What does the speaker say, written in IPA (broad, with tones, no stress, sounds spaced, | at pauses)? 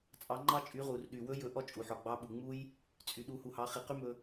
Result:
t͡sʼ ɑ˩˧ ŋ͡ǃ ɑ˧ t͡ʃʼ y˩˧ ʁ u˩ r ɗ y˩ w ɵ˧˥ j ɵ˧˥ ʔ ɔ˥ t͡ʃʼ u˩ ħ ɔ˩ ɡ͡b ɑ˧˥ ɓ u˩ ŋ͡m u˥ j | t͡sʼ y˩ ɗ u˩˧ h u˩ h ɑ˩˧ χ i˩ q y˥ m ɵ˧